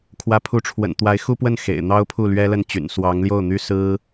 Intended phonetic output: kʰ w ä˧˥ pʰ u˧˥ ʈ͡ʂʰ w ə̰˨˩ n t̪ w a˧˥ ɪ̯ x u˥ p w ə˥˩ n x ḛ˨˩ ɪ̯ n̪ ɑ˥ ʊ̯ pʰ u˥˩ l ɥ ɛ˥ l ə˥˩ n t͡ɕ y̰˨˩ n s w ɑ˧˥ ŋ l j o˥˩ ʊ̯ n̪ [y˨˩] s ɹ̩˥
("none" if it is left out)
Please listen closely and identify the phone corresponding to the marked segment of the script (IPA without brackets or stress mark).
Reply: y˥